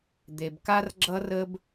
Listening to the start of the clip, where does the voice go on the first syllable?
low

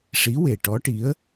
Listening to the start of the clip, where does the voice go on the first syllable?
rising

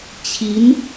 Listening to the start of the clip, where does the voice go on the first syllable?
rising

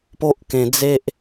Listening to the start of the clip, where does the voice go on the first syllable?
high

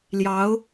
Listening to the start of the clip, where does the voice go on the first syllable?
rising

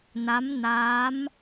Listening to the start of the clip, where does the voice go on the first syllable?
rising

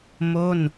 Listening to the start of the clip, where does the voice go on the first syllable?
falling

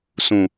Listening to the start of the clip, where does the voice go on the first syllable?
low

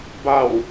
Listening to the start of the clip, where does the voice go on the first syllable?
low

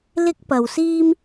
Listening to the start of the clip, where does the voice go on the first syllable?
high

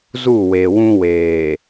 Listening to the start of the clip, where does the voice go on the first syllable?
falling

